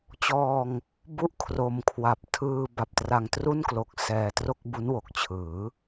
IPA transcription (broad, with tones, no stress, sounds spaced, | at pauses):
t͡ɕ ɔː˧ ŋ | b u˥˩ ʔ kʰ r o˧ m kʰ w a˨˩ p̚ tʰ ɯː˧ b a˨˩ p̚ t r a˧ ŋ t r u˥˩ n k l o˨˩ k̚ s ɛː˧ t r o˥˩ k̚ b u˦˥ n w o˨˩ k̚ t͡ɕʰ ɯː˩˦